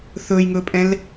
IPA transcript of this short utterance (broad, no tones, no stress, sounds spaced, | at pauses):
θ ɵː j ŋ ɵː pʼ ɛ̃ l